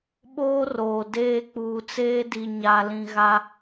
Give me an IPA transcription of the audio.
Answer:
ɓ oː˦ r oː˨ d eː˦ k͡p uː˨ t͡s eː˦ d i˨ ɲ a˨ l ĩ˨ ɣ a˦

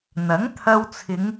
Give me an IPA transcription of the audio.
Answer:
n̪ ɐ˨˥ ŋ t̪ʰ ɐ˧ w t͡sʰ ɪ˨˧ ŋ

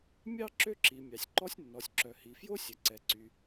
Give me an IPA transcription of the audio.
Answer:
mʲ ɑ˥ ǁ ø˥ ǁ i˩ mʲ ɑ˩ sʲ ǃ ɔ˥ sʲ nː ɔ˩ sʲ ǁ œ˩ h i˩ f j o˥ sʲ œ˩ ǀ ɛ˩ ǀ y˩

